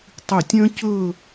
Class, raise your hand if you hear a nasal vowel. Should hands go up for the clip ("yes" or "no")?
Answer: yes